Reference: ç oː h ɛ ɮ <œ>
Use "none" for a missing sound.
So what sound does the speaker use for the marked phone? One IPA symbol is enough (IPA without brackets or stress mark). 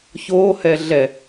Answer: ɛ